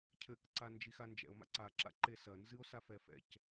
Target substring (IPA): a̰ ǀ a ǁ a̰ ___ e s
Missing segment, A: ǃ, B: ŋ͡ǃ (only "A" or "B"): A